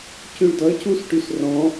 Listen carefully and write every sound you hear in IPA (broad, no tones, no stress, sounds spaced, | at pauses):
c y ɭ d ʌ c u s ʈ y s r ɔ̃